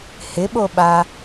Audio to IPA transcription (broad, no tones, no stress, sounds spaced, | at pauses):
h ɪ ɓ o ɓ a